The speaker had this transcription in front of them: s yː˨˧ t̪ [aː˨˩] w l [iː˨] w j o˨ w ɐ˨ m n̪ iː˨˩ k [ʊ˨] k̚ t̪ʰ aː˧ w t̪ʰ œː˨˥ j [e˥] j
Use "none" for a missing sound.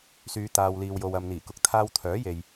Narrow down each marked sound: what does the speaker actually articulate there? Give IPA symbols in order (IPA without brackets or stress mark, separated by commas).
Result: aː˨, iː˨, ʊ˨, e˨